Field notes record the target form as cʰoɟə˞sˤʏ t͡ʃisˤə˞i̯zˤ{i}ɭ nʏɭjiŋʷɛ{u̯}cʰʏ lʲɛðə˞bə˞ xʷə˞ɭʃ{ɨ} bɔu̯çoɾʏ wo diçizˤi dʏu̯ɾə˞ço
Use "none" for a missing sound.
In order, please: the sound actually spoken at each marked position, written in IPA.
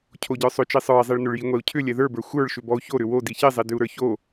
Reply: i, u̯, ʏ

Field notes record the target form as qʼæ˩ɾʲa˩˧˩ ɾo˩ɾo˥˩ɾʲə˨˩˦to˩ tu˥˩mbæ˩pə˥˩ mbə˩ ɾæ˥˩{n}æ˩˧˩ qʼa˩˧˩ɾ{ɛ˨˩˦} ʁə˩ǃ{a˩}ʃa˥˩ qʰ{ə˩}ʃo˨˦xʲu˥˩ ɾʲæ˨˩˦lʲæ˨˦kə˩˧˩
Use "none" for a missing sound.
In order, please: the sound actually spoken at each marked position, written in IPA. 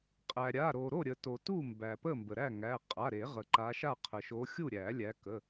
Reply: ŋ, e˨˩˦, a˨˦, ə˩

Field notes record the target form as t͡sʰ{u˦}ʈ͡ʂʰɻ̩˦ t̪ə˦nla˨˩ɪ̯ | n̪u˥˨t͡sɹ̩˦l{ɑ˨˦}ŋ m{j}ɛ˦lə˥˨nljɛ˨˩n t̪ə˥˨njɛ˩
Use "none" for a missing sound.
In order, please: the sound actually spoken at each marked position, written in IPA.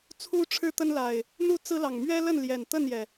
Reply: u˦, ɑ˨˩, ɥ

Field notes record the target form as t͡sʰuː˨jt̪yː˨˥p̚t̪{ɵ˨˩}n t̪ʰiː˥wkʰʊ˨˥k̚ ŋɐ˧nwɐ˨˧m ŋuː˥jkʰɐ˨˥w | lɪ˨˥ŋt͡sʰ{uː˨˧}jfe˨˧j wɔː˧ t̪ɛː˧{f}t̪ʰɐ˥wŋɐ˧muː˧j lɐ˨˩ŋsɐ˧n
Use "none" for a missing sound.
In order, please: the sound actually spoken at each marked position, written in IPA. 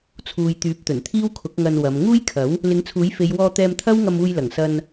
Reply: ɵ˨˩, uː˨˥, m

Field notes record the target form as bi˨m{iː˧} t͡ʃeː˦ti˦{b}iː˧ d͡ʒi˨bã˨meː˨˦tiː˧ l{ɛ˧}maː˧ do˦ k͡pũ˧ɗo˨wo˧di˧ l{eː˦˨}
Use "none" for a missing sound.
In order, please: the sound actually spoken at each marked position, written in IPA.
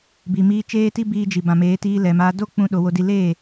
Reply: iː˧, b, ɛ˨, eː˦˨

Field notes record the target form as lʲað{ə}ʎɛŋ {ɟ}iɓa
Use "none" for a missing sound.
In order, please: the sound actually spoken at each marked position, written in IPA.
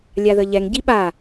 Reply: ə, ɟ

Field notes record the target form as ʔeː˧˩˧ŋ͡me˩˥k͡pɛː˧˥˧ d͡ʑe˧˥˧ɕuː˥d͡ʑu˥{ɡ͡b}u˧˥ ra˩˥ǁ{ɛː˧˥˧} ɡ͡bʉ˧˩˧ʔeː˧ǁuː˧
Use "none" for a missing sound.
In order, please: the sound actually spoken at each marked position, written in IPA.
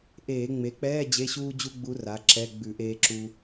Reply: ɡ͡b, ɛ˧˥˧

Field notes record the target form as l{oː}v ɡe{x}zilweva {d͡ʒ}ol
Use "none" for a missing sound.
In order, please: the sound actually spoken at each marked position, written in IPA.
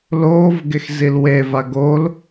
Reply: oː, x, ɡ

